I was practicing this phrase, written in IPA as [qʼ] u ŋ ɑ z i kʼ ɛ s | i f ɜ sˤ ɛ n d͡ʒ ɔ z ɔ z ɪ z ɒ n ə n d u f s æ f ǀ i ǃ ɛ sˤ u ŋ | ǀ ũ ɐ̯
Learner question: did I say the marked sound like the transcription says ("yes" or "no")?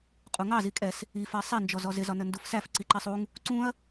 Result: yes